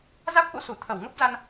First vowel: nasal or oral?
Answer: oral